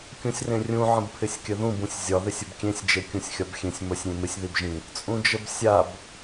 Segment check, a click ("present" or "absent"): absent